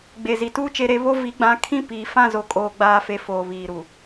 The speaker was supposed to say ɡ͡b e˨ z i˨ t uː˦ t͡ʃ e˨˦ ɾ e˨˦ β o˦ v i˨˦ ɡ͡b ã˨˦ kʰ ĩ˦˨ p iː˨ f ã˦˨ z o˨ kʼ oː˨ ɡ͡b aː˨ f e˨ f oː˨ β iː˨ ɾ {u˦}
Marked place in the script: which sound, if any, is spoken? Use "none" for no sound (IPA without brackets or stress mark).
u˨